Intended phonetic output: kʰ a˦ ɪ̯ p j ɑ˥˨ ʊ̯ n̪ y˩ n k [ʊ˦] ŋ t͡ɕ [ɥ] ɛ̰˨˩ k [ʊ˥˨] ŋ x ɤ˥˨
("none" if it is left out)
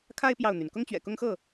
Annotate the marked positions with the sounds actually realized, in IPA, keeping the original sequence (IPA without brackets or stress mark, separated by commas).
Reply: ʊ˦, ɥ, ʊ˦